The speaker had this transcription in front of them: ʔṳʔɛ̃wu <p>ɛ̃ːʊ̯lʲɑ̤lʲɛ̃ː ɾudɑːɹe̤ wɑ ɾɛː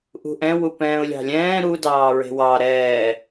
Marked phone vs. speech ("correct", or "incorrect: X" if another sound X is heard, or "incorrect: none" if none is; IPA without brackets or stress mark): correct